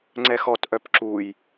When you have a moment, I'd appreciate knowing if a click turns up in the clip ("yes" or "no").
yes